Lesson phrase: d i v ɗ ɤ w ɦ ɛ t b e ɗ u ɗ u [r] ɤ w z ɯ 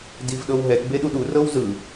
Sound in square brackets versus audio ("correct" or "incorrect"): correct